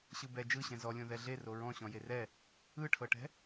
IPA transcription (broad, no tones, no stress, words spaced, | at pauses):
ɕɯbɛ d͡ʒɯɕɛ̃ zɔlʲõ ðɛɮe roɹɔ̃ɕɔ̃ jerɛ | ɯʈʰɤʈɛ̤